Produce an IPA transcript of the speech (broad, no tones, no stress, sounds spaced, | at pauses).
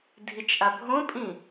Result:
dʱ i t͡ʃ ʔ a bʱ õ pʼ ĩ